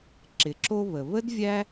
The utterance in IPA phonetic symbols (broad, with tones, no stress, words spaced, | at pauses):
ǁɪ˩ǁo˧ βə˩ βə˥d vʲæ˥